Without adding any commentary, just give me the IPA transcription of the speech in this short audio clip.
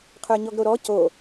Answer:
qʰ ə˞ ɲ ɔ ɡ ɾ o ɾ ɔ c o

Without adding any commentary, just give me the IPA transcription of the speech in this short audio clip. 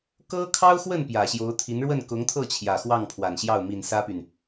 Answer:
k ɤ˥ kʰ ɑ˥ ʊ̯ x w ə˥˩ n p j ä˨˩ ɕ j o˧˥ ʊ̯ t̪ʰ i˧˥ n ɻ w ə˥˩ n k ʊ˧˥ ŋ t̪ʰ ɤ˥˩ t͡ɕʰ j ä˨˩ x w ɑ˥˩ ŋ pʰ w a˨˩ n ɕ j ɑ˥˩ ʊ̯ m i˨˩ n s ä˥ p y˨ n

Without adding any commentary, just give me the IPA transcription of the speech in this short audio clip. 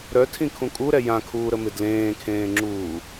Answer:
ɾ œ tʰ ĩ kʰ ũ kʼ u ɾ ɛ j ã kʰ uː ɾ ə m ɪ d l ẽː kʰ ẽː ŋ͡ǁ uː

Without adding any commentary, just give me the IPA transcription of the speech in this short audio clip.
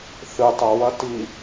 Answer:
θ ɨ tˤ ɐ w ɐ t i

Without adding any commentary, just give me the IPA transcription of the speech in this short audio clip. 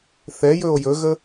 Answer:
θ ɛ j ɵ o̯ j ɵ ɣ ə

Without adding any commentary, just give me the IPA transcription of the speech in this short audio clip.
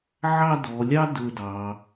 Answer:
ʕ ɑ˥˧ d ɔ˩˧ lʲ ɑ˥ d ɵ˥˧ d ɑ˩˧

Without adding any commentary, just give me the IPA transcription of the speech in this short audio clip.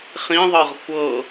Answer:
χ ĩ ðˤ ɤ ʁ kʷ ɤ

